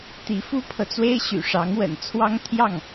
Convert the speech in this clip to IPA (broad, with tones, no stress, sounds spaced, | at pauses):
t̪ i˧˥ f u˥ pʰ ɤ˨ t͡s w e˥ ɪ̯ ɕ y̰˨˩ ʂ ɑ˧˥ ŋ w ə̰˨˩ n t͡sʰ w ɑ˥ ŋ t̪ʰ j ɑ˥˩ ŋ